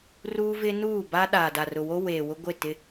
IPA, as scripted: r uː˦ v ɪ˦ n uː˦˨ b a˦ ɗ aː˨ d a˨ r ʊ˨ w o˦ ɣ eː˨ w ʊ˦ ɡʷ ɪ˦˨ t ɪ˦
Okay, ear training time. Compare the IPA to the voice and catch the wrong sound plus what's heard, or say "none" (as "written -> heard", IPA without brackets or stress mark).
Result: ɣ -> w